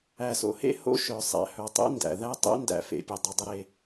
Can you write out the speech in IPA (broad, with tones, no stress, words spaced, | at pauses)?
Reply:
æ˨so̰˨hḛ˦ ho̰˦ʃœ˨ sˤæ̰˨hœ˨tˤḛ˦ ndæ̰˨ ðæ˦tˤḛ˦ndæ̰˨ fḛ˨ pʲe˨dˤə˨ dˤə˦ɾe˦